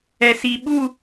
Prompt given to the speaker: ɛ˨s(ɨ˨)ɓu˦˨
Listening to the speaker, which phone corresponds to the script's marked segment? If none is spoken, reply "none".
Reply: i˨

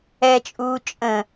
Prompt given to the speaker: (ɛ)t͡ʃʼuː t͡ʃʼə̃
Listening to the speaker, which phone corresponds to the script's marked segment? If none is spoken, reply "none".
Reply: ɛ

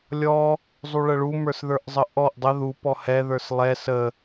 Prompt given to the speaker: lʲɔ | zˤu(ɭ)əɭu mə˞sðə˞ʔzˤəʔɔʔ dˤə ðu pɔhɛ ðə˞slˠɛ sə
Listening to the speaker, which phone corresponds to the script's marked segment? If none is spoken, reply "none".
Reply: ɭ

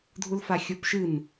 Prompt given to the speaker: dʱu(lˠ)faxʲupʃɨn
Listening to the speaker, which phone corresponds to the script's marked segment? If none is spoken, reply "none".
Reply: l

